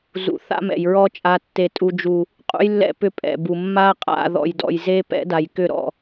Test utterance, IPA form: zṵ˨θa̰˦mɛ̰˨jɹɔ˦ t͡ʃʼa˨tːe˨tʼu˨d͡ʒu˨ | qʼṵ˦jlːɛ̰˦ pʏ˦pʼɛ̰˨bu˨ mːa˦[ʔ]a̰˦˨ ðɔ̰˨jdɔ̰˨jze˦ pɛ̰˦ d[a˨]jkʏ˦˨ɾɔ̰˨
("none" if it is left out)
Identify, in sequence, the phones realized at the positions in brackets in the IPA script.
qʼ, a˨

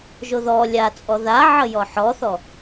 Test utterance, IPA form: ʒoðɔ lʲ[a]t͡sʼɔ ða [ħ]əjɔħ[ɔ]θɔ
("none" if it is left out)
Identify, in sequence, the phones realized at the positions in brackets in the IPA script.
a, ʕ, ɔ

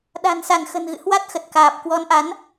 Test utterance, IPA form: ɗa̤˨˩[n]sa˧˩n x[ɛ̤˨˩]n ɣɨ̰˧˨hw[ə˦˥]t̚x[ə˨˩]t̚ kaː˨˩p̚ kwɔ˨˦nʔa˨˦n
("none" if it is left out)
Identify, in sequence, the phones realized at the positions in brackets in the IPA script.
n, ə̤˨˩, a˦˥, ə˨˩

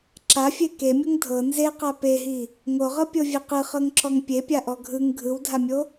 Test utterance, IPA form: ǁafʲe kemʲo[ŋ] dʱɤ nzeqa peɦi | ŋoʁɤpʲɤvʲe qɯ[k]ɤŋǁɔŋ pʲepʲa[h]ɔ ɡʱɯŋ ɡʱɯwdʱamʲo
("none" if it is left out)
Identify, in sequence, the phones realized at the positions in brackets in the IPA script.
ŋ, χ, ʔ

